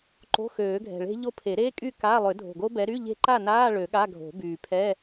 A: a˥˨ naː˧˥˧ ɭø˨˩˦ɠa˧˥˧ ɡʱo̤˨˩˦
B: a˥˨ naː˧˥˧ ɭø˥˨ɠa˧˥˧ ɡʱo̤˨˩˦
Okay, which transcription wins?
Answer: A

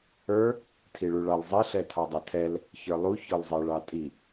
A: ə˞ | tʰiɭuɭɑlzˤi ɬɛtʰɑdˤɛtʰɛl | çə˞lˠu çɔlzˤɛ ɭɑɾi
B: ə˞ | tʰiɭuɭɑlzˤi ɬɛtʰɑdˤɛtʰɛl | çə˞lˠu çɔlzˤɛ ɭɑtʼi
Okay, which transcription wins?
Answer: B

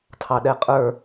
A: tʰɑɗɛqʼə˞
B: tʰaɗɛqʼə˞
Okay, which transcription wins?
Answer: A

